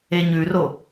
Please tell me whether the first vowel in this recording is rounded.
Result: no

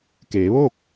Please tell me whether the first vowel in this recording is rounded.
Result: no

